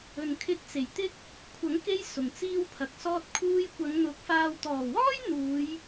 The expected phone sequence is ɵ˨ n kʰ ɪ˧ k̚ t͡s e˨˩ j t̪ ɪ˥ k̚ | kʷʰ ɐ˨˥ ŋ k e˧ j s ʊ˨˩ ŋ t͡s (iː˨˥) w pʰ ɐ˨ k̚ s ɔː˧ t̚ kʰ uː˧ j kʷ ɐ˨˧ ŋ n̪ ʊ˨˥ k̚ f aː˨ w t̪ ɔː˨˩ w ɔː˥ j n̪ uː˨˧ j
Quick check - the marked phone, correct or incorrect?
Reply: incorrect: iː˥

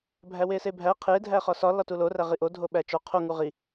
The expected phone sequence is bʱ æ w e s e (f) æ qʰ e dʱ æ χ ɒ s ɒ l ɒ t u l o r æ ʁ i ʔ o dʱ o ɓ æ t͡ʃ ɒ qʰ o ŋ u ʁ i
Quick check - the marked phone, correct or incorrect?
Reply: incorrect: bʱ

